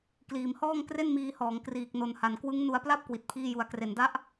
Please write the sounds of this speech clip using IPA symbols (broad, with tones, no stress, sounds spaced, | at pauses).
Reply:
k l iː˩˦ m h ɔː˥˩ ŋ k r e˥˩ n m iː˧ h ɔː˩˦ ŋ k r iː˨˩ k̚ n o˨˩ n h a˩˦ n k w ɯ˦˥ ŋ n u˧ a̯ p l a˥˩ p̚ k w i˨˩ t̚ pʰ iː˥˩ j u˩˦ a̯ k r e˩˦ n d a˦˥ ʔ